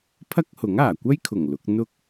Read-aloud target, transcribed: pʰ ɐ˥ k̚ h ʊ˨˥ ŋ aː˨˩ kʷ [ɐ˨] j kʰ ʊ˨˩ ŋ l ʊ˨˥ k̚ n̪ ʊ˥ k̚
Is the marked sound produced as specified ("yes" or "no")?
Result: no